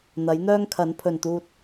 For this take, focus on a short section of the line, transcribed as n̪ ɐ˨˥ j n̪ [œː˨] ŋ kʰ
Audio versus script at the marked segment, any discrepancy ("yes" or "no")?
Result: yes